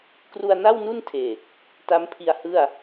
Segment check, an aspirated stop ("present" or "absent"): present